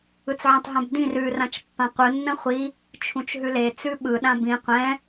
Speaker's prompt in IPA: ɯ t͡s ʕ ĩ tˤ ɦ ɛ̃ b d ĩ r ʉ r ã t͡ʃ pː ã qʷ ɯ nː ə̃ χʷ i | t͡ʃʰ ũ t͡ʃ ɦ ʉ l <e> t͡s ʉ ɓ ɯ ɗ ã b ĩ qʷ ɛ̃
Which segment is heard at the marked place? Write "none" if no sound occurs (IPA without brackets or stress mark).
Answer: e